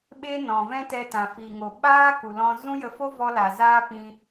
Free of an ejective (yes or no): yes